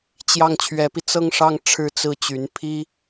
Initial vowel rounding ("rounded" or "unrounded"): unrounded